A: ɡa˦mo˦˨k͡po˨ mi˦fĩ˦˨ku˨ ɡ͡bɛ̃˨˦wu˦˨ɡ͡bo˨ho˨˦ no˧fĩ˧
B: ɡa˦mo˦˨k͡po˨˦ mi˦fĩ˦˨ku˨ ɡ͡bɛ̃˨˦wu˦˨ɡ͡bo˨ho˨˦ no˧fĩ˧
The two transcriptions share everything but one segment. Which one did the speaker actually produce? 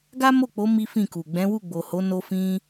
B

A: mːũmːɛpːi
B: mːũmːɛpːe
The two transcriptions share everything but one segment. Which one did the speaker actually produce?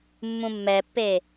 B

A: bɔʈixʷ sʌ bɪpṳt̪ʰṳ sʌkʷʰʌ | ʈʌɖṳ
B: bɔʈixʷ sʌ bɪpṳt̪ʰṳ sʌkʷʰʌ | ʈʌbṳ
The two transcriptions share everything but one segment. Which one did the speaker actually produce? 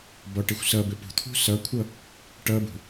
B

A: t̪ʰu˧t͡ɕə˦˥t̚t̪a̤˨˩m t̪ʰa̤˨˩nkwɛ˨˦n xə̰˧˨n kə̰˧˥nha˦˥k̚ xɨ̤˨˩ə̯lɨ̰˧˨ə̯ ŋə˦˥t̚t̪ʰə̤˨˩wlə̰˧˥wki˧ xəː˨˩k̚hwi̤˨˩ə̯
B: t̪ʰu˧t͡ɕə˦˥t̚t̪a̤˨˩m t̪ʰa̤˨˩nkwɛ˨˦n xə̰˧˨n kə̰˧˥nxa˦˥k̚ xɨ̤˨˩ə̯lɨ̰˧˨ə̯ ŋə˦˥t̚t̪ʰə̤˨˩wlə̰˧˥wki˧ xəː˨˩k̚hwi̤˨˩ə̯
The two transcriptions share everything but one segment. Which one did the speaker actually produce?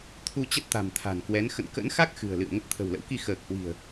B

